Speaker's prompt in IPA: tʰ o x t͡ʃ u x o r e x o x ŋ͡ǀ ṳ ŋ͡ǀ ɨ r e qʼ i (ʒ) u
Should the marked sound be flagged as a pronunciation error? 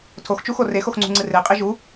no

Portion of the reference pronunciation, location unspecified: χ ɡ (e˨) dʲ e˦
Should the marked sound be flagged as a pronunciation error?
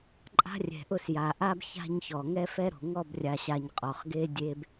yes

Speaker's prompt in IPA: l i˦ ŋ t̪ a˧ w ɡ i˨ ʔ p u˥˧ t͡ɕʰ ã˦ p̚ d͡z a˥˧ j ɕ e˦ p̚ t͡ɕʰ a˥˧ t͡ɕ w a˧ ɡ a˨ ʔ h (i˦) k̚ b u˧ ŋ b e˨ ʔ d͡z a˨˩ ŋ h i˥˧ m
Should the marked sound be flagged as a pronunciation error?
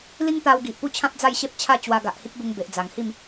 no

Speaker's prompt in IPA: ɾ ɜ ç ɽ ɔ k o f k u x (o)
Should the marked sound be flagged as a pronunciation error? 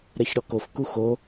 no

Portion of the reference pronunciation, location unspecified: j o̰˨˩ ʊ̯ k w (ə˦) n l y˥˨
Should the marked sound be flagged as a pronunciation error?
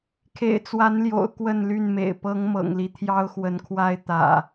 yes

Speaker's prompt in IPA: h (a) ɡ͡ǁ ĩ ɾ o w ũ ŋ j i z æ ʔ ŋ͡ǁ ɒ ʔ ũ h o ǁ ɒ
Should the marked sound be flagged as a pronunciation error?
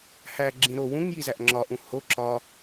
yes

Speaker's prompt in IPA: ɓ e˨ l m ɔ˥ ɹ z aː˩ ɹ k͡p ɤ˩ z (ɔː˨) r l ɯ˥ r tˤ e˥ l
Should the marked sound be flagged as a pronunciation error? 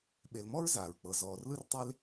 no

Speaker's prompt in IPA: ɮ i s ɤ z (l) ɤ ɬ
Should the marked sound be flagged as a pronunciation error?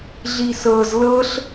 no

